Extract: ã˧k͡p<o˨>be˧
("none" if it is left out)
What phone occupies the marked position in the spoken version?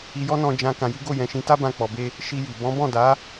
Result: ɔ˨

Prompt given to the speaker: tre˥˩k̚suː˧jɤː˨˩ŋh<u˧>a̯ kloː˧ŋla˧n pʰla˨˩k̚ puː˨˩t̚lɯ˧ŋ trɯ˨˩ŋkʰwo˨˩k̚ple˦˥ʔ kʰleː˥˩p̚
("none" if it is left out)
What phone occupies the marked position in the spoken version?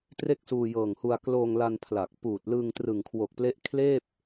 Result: u˧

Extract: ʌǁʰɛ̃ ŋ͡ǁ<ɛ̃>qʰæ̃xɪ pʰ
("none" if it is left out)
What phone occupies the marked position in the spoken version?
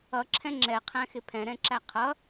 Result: ɛ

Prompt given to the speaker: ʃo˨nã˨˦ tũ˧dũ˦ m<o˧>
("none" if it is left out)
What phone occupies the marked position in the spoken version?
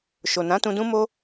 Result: o˦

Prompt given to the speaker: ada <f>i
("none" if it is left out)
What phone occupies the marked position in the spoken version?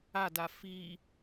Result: f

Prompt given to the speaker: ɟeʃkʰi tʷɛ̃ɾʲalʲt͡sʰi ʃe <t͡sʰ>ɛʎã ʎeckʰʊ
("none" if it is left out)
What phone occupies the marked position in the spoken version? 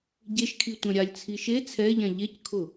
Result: t͡sʰ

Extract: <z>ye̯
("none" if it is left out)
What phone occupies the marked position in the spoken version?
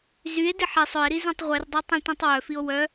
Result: z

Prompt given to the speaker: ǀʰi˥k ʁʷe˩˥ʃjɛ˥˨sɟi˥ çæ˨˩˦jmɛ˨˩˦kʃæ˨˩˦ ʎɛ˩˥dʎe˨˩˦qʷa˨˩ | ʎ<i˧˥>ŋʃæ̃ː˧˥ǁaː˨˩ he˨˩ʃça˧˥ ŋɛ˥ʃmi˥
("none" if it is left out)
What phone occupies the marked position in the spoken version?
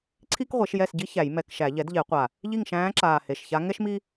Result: i˥˨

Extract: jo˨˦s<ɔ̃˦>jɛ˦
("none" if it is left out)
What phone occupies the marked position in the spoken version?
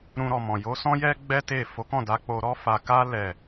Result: ɔ̃˦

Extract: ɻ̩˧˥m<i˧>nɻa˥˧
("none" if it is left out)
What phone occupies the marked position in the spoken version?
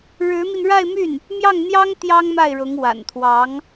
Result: i˧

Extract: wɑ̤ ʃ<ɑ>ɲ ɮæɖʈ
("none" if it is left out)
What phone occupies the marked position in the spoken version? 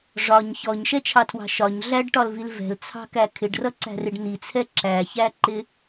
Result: ɒ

